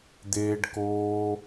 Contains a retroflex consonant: yes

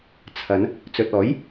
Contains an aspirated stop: yes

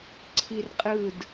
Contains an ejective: yes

